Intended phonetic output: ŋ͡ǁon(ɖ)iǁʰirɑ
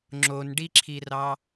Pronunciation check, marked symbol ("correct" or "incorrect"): correct